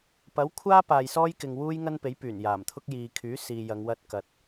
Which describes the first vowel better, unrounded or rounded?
unrounded